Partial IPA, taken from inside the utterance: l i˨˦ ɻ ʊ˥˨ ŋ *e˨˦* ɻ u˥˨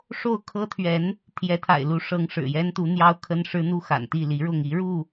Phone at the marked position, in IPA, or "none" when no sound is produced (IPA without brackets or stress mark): i˨˦